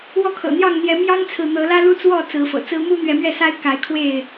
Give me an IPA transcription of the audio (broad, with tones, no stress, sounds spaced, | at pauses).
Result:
w ɔ˥˨ kʰ ɤ̰˨˩ n̪ j ɑ˥˨ ŋ n̪ j ɛ˨˦ m j ɑ˦ ŋ t͡sʰ ɹ̩˨ n̪ ɤ˨˦ l ä˦ l u˦ t͡s w ɔ˥˨ t͡s ɹ̩˨˦ f ɤ̰˨˩ t͡s ɹ̩˦ m u˦ n̪ ɥ ɛ˨˦ m ɥ ɛ˥˨ s a˦ ɪ̯ k a˨˦ ɪ̯ kʰ w e˥˨ ɪ̯